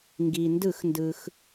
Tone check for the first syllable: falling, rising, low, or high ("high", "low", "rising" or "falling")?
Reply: low